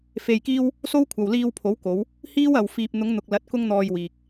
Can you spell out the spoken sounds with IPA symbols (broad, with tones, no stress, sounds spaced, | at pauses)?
f e˧ j k iː˥ w | s o˥ w kʷʰ ɐ˨ w l iː˧ w pʰ o˨˥ w k o˨˧ w | h iː˥ w ɐ˨ w f iː˨ p̚ n̪ ʊ˨˧ ŋ n̪ ʊ˨ k̚ l ɐ˨˥ t̚ k ʊ˥ ŋ n̪ ɔː˧ j w iː˨ k̚